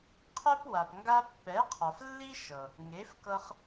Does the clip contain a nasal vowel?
no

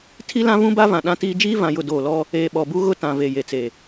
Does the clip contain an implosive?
yes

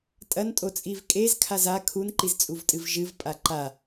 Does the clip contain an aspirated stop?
yes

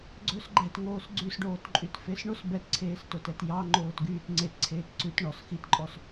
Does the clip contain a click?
yes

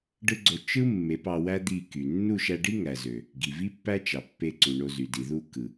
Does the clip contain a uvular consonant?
no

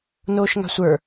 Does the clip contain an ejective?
no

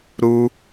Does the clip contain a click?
no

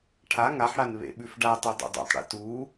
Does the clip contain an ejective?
no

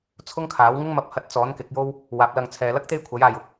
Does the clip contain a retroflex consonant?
no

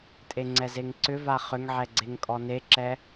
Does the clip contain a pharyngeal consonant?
yes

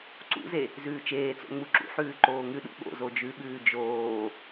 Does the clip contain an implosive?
yes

